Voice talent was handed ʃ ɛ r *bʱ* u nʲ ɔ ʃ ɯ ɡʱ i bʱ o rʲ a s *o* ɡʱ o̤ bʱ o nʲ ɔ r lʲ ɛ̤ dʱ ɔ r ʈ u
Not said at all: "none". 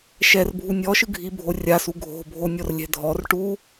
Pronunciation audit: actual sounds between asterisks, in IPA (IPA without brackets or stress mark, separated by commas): bʱ, u